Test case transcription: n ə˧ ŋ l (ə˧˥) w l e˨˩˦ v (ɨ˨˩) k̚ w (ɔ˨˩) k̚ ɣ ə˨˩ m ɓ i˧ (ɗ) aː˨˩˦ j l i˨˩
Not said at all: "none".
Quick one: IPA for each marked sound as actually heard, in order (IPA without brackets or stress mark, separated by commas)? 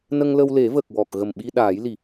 ə˧, ə˨˩, ɔ˨˩, ɗ